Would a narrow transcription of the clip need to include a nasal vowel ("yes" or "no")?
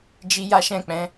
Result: yes